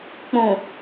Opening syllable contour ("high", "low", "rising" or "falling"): low